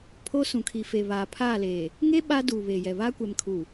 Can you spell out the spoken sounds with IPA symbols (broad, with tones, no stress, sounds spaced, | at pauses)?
pʰ o˦ s ũ˨ kʰ i˨ f e˨ β aː˨ pʰ aː˦˨ l eː˨ | ŋ e˦ ɓ a˦ d uː˨ β eː˨ j ɛ˨ β aː˦ kʷ ɛ˨ m kʰ u˨